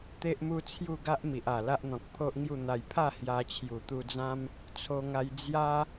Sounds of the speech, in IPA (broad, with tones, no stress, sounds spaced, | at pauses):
t̪ e˦ ʔ m u˦ t͡sʰ j u˥˧ ɡ a˦ ʔ m i˨ ʔ a˨˩ l a˦ ʔ n̪ ɔ̃˨ k̚ pʰ o˦ ʔ ŋ j u˥˧ n̪ a˧ j pʰ a˥˧ h j a˧ t͡ɕʰ j u˨˩ t̪ u˧ d͡z ã˦ m | t͡sʰ o˧ ŋ a˧ j d͡z j a˦